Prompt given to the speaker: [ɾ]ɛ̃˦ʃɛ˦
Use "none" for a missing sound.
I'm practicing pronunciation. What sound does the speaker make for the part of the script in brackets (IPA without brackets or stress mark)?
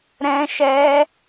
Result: ɾ